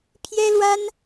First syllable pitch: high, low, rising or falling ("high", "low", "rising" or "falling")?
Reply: high